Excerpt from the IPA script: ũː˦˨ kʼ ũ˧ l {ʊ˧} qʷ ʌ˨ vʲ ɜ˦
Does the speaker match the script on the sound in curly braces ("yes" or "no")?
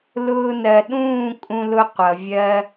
yes